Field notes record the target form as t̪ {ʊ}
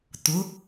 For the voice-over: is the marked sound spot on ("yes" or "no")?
yes